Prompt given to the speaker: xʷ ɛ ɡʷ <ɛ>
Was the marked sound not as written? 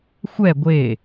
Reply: yes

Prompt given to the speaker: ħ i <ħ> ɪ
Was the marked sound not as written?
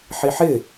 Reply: no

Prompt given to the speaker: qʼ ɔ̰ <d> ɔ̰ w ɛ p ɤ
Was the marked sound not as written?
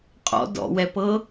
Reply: no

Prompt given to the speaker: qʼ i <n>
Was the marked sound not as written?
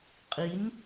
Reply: no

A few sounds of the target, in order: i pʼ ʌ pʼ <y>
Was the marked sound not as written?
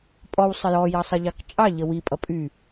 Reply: no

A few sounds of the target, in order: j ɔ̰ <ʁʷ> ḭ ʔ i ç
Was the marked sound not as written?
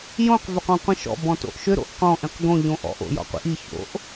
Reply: yes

